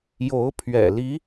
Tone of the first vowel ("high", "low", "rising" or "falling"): rising